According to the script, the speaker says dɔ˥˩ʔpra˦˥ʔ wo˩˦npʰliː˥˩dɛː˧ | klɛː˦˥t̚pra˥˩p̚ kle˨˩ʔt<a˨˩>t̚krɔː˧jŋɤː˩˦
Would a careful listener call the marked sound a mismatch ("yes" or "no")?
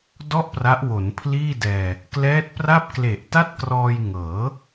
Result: yes